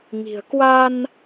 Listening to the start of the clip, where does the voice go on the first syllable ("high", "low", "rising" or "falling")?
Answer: low